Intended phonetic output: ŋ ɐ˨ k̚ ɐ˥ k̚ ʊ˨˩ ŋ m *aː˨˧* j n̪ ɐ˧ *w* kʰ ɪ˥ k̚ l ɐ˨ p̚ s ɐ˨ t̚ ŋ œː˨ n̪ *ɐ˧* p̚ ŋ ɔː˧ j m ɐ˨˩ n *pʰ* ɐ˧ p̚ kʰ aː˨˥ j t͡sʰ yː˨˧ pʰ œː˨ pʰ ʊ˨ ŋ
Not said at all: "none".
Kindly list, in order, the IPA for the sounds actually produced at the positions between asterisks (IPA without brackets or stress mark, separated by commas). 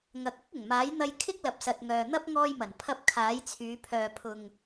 aː˨˥, j, ɐ˥, pʰ